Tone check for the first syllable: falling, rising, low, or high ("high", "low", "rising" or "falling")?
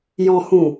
low